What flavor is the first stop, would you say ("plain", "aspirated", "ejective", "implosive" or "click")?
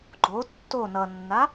click